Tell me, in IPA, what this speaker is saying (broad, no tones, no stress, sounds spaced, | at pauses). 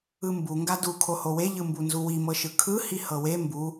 ɯ m b u ŋ ɡ a d u kʰ o h o w e ʎ ɯ m b u n z u w i m ɤ ʃ ɯ kʰ ɯ h i h ɤ w e m b u